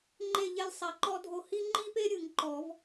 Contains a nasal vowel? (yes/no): no